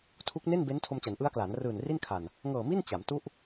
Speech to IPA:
tʰu˦˥k̚ ne˥˩nbe˦˥n tʰo˧mt͡ɕa˩˦nʔɯ˦˥a̯klaː˩˦n rɯː˨˩n ri˥˩nkʰa˨˩n | ŋɤː˨˩mi˥˩n t͡ɕa˩˦mtu˥˩ʔ

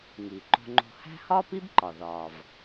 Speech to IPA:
ŋi˩ ǃo̤˧ŋ͡ǃo̤˧ hæ̤˥ hɒː˥pi˥bǃɒ˩ ðɒː˩v

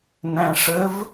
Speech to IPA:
næ̃ʂəv

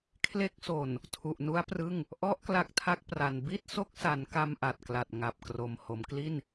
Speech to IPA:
kʰle˦˥k̚so˨˩n | tʰu˨˩ʔnu˦˥a̯prɯ˥˩ŋ | ʔɔ˦˥ʔ kla˦˥k̚tʰa˥˩k̚pra˨˩n bi˥˩t̚so˦˥k̚sa˩˦n ka˧mʔa˨˩t̚kla˨˩t̚ ŋa˨˩p̚ kro˨˩m ho˩˦mkli˥˩n

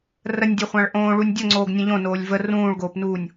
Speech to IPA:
rənʲdʲo χʷãɭʔõː ɭunʲdʲoŋ͡ǀoːɡ nʲə̃ʎõnoːlʲ və rũːɭɡoːpnuːnʲ

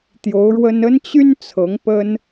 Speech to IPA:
t̪jo˧˥ʊ̯ɻwə˥n ə˥nt͡ɕy˥n t͡sʰɤ˧˥ŋpə˥n

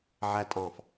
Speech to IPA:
ʕætʼɑ̃f

